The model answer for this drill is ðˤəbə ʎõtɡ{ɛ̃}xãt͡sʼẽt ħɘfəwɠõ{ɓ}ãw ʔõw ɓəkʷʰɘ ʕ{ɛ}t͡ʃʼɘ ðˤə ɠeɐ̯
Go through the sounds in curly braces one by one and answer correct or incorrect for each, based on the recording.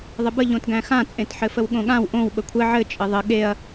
incorrect: æ̃, incorrect: ɠ, incorrect: ɘ

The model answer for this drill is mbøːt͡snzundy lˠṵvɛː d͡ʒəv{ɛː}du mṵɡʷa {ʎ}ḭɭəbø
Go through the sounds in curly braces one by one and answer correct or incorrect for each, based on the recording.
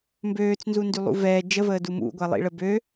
incorrect: əː, incorrect: lˠ

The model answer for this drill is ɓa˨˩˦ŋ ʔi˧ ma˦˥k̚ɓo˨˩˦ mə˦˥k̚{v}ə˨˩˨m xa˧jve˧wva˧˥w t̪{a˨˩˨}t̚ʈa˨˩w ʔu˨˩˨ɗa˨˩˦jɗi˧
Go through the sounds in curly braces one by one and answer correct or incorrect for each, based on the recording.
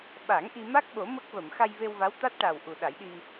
correct, incorrect: a˦˥

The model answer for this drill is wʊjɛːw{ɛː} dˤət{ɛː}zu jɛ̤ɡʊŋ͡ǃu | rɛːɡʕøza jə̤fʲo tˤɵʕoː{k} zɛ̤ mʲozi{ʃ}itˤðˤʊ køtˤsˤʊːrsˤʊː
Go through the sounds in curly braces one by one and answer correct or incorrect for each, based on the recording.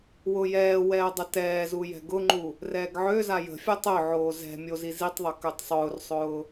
correct, correct, incorrect: none, incorrect: z

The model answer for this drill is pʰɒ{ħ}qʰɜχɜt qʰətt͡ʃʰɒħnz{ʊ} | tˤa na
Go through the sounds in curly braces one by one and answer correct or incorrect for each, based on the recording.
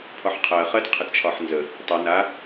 correct, incorrect: ə

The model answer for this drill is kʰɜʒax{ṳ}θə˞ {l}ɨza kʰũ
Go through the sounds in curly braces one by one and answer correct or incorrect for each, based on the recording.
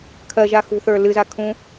correct, correct

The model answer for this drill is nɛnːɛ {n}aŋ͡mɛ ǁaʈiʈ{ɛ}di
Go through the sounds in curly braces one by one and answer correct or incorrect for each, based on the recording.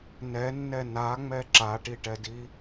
correct, correct

